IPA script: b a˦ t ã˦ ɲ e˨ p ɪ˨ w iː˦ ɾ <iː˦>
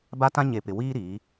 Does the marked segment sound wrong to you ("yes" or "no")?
yes